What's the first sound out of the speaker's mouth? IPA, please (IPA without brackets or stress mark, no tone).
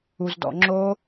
u